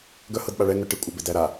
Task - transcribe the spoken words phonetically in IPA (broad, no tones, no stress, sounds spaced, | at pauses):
ɡ œ h ɤ d ɓ a ɭ ɛ ŋ œ ʈ i kʷʼ a b e d æ ɾ a